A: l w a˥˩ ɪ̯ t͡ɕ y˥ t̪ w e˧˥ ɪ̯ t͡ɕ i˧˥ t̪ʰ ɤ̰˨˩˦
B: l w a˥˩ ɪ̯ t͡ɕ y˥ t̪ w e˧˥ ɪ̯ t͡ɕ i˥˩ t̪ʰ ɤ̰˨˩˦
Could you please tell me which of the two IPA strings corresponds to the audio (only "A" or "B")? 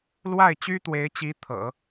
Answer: A